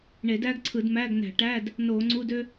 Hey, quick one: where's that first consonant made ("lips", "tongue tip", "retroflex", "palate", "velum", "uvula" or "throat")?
retroflex